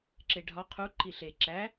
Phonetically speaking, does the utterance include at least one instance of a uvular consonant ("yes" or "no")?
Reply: yes